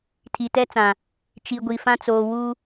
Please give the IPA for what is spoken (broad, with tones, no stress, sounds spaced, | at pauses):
tʰ i˨ t ɛ˦ t͡s ã˨ | t͡ʃ i˨ ɡʷ i˨ f ã˦ t͡s oː˨ w u˦